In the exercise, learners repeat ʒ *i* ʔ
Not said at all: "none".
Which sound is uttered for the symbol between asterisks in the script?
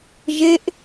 e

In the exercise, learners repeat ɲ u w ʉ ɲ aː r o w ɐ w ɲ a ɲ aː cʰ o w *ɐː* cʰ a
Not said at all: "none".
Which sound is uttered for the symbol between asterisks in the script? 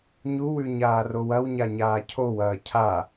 ɐː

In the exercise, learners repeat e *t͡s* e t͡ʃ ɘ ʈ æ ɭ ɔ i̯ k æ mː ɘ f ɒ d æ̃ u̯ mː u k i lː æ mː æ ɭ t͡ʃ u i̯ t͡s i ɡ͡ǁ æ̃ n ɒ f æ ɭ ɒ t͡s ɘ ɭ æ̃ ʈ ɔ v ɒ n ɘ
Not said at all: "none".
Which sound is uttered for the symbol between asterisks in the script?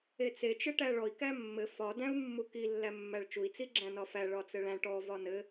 t͡s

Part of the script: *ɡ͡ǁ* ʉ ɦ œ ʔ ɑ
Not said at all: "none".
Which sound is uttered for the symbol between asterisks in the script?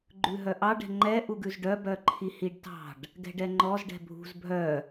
ɡ͡ǃ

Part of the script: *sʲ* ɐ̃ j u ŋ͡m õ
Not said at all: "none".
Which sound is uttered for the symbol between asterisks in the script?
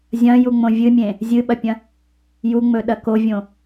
zʲ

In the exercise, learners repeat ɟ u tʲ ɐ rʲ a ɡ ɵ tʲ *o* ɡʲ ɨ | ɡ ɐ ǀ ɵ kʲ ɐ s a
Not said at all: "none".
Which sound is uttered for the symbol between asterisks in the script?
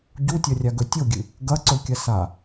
o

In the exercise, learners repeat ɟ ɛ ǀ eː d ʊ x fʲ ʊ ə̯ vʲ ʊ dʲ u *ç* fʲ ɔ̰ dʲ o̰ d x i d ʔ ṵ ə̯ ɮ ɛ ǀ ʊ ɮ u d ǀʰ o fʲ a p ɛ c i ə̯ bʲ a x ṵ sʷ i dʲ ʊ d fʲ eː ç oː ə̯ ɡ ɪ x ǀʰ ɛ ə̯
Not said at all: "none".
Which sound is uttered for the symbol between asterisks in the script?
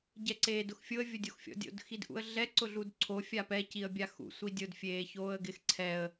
x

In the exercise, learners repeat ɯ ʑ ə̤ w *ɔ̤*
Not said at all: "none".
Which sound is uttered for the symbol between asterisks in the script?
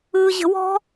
ɔ̤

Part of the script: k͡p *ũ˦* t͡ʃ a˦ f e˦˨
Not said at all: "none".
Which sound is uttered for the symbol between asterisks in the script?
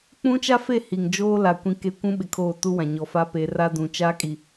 ũ˦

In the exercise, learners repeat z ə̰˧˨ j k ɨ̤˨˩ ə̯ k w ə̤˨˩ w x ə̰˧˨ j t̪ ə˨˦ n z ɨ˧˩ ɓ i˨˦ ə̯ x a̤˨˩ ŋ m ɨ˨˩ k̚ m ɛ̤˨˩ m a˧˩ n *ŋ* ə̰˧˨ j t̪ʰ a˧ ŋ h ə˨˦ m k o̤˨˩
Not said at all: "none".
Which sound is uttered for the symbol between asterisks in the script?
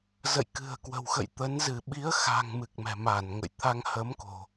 ŋ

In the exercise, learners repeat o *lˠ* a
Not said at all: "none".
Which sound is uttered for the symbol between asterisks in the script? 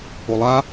lˠ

